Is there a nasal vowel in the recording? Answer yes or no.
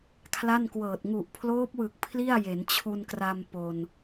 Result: no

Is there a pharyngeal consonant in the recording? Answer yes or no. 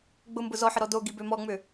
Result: yes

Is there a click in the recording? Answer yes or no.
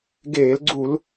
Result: yes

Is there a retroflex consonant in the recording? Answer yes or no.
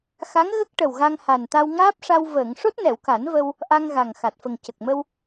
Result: yes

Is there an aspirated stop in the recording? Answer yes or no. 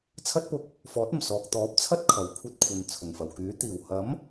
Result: yes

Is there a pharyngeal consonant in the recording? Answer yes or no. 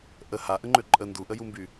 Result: no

